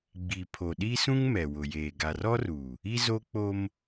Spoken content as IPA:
ɡ͡bi˨ pʰo˨ɗi˦sũ˦ŋ mɛ˨wʊ˨jeː˨ ɡa˨r ɔ˦ru˨ | i˦zo˦k͡po˦m

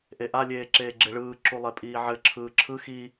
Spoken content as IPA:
ʔeʔalʲeː ǁeːɡ͡ǁeɭɯːǁu lˠepʼiːʕɘǁʰɯː ǁʰɯ xi

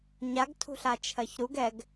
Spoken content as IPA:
ɲaɡ tʰṳɬat͡ʃʰɜçɾuɡ ɛɡ

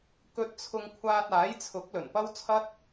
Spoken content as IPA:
kɵ˧t̚t͡sʰʊ˧ŋ kʷʰaː˧t̚aː˨˥jt͡sʰʊ˨˥k̚ lɵ˨˩npɐ˥wt͡sʰɐ˥t̚

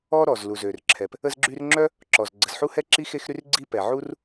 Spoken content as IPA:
ɔ˥ ɾɔ˩zlu˩zø˩rǁʰɛ˩p | ə˥zɡ͡ǁy˥r ŋ͡ǁœ˥ | ǁɔ˩z ɡ͡ǀə˩zħu˥hɛ˥ǁi˥ xe˥xɾy˥rɡ͡ǀi˥pɛ˩ ʕu˥r

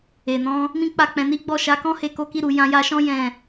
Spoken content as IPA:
e˨nɔ̃˨˦ | mĩ˦k͡pa˦˨k͡pɛ̃˧ni˦ ɡ͡bɔ˦˨ʃa˨˦kɔ̃˦ he˧ko˧ki˧ɾu˨ jã˧ja˧ʃɔ̃˦ jɛ̃˦˨

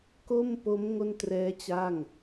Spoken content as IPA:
ko˥˩mpo˦˥m ŋo˥˩ntrɛː˦˥ t͡ɕa˥˩ŋ

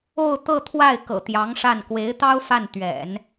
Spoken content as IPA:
o˥˧ʊ̯t̪ɤ˥˧ t̪ʰwa˥˩ɪ̯kɤ̰˨˩t̪jɑ˧˥ŋ ʂa˥˩n kwe˧˥ɪ̯t̪ɑ˥ʊ̯ fa˥˩n t̪ɥɛ̰˨˩˦n

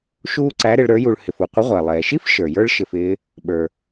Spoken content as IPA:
ʃuː˥ǀæ˧˥ɾɪ˩˧ɭ ɾə˞˧˥ju˧ɭ hɪ˩fu˩ qʷɪ˧˥ʁʷæ˩lˠɛː˩ ʃi˥f ʃə˞˩jə˞˥ɭ ʃɪ˧fɪː˧˥ | ɓə˞˩

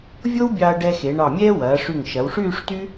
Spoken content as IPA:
vʲo˥wbʲɑ˧ɐ̯ɖɛ˧ xe˩˧ɳɑ˧˩mʲɛː˥ wɐː˩˧ʂy˧˩ŋ ʃɐ˩˧wʂyː˥˧ʂty˥

